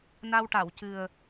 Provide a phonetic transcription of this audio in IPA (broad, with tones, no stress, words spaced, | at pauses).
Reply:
na˧wʈa˨˩˨wcɨ˨˩ə̯